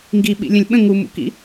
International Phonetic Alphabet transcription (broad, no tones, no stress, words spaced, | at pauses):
ŋɡiɓḭlʲə̃lʲ ɓə̃ ŋumṵkḭ